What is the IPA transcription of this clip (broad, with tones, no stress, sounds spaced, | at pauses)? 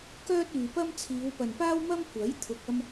k œː˥ t̚ yː˨ p ɐ˥ m t͡sʰ iː˨˧ w p ɐ˨ n p aː˥ w m ɐ˥ m kʷ ɐ˨˥ j t̪ʰ ʊ˨ k̚ ɐ˥ m